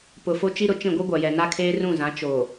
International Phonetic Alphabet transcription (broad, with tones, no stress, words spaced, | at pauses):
pʊ˨ fo˦t͡ʃi˦ɾʊ˨ t͡ʃĩ˦˨ɡʷi˦ɡʷa˨jɛ˨ na˦kʰeː˦rũ˦˨zã˨˦ t͡ʃo˨